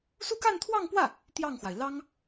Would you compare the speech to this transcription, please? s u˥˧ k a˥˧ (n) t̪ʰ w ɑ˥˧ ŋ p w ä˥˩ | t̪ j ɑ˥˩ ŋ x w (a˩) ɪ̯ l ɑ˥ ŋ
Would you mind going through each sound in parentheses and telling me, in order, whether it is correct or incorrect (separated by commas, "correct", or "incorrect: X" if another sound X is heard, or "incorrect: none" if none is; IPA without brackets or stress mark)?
correct, correct